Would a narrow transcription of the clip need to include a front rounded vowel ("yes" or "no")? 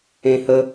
no